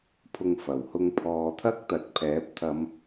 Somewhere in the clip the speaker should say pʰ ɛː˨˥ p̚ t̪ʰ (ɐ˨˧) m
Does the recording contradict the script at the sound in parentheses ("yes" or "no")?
no